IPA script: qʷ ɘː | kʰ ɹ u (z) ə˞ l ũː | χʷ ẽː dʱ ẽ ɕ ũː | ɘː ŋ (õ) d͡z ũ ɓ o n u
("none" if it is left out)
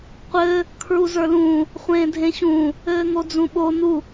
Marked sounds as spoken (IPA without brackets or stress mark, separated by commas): z, o